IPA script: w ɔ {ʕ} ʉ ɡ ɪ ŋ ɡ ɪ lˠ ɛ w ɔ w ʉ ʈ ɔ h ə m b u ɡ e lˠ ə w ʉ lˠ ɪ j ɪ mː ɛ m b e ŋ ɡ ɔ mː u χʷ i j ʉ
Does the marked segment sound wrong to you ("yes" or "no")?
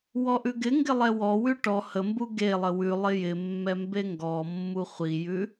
yes